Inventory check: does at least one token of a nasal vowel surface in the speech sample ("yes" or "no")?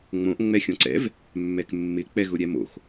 yes